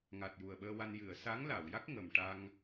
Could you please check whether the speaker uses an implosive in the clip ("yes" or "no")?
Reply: yes